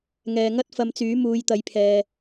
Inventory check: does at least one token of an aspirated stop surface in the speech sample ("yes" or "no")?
yes